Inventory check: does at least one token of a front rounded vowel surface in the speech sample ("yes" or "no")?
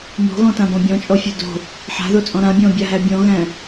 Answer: no